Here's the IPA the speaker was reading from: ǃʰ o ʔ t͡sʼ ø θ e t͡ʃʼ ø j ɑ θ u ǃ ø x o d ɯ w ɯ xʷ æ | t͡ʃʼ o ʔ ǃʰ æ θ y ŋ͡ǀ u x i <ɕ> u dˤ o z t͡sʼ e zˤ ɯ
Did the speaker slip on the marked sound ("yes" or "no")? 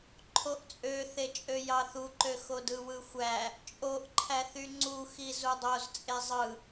yes